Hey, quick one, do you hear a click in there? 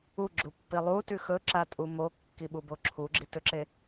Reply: yes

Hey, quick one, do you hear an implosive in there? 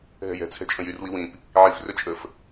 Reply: no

